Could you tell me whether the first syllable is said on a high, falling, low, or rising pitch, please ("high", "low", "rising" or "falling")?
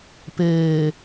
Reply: low